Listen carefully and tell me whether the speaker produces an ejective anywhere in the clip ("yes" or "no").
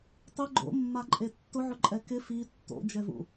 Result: yes